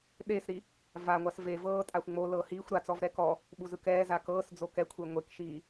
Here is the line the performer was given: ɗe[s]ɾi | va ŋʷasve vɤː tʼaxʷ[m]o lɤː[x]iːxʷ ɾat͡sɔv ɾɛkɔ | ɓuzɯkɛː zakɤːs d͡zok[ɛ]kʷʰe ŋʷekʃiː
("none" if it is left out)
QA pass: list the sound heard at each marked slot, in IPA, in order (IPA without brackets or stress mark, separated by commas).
s, ŋ͡m, h, ɛ